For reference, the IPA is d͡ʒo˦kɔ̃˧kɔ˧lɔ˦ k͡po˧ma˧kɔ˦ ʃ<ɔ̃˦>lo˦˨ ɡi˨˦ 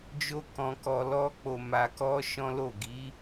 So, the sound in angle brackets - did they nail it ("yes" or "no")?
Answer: yes